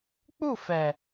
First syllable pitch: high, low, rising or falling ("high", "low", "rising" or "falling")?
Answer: falling